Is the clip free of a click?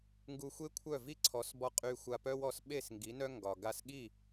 no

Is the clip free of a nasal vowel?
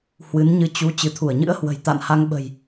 yes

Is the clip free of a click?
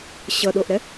yes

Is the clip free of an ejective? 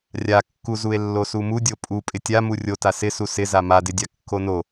no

